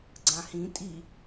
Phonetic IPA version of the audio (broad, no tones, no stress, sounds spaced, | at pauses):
ɡ͡ǀ ã h ĩ tʼ i